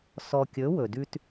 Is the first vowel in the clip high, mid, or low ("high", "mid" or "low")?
mid